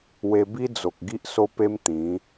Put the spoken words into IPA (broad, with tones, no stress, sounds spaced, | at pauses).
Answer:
w e˧ b i˦ d͡z o˨ k̚ ɡ i˦ ʔ s o˦ p e˦ m t̪ ĩ˨˦